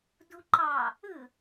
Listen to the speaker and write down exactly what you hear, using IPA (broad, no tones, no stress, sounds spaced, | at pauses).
d u ǃ ɑ | ɯ